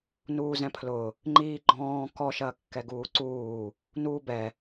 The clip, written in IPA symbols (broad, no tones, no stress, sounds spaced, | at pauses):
n uː z ɛ̃ pʰ l ʊ | ŋ͡ǃ iː ɡ͡ǃ ɔ̃ː k ɔ ʃ ɐː kː ɛ ɡ uː ǀ uː | n uː b ɛ